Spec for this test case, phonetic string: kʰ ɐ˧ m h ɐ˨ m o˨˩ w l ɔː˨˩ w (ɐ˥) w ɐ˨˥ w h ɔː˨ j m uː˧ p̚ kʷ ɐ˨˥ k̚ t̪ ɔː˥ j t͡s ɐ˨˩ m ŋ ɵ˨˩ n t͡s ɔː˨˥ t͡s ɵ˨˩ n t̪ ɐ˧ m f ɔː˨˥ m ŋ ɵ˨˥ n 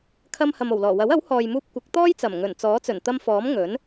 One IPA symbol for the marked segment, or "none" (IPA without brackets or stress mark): ɐ˨˥